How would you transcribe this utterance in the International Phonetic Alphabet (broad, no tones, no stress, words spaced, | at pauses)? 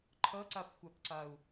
ǃʰʌǀapxʷapǀau̯